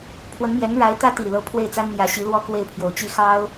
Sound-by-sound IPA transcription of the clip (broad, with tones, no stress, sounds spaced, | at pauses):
pʰ w ə˧˥ n m j ɛ˧˥ n ɻ a˧˥ ɪ̯ t̪ ä˥ t̪ i˨˩ l ɤ˧˥ pʰ w e˥˩ ɪ̯ t͡s a˥ n n̪ j ä˧˥ ɕ i˧˥ l w ɔ˥ k w e˥˩ ɪ̯ pʰ j o˨˩ ʊ̯ t͡ɕ i˥ x ɑ˥ ʊ̯